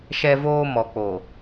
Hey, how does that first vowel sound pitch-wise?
high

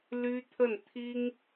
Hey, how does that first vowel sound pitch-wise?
high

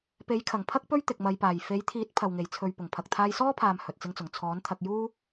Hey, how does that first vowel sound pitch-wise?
rising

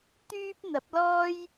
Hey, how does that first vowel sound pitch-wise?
high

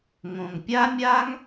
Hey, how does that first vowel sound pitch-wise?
low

